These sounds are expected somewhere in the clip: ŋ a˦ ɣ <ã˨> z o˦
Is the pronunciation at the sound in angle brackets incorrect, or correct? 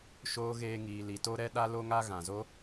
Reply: correct